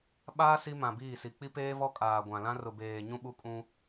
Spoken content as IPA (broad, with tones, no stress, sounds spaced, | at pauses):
ɓ aː˦ s i˦ m ã˨ b iː˦˨ s i˨ k͡p i˦ p eː˦ v ɔ˦ kʼ aː˨ ɡʷ ã˨ l ã˦ r ʊ˨ b eː˨ ɲ ũ˦ ɓ u˦ kʼ ũ˦